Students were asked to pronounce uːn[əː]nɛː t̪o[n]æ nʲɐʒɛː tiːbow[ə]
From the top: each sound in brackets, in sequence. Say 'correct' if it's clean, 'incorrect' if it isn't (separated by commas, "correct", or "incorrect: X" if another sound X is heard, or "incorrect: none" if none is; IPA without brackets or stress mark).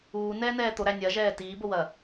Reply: incorrect: ɛː, incorrect: ɾ, incorrect: ɐ